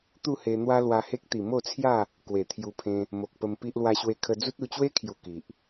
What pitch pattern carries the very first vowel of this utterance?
falling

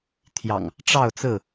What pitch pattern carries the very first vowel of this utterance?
low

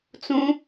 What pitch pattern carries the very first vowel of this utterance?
high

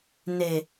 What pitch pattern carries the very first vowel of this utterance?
low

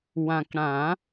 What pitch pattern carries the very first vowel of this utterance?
low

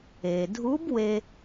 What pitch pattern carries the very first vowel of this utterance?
low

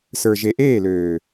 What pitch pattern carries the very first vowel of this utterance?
low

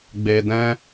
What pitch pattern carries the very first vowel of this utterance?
low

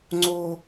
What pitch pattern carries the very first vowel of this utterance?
high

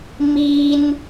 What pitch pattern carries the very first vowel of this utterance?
high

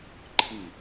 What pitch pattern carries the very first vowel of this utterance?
falling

